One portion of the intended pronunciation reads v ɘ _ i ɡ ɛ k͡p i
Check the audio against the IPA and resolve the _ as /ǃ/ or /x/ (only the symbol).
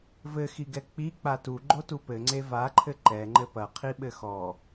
x